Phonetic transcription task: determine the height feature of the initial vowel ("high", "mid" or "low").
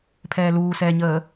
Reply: mid